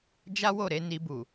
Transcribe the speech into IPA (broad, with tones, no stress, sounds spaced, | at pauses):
d͡ʒ a˦ w o˦˨ ɾ e˧ n i˧ b u˨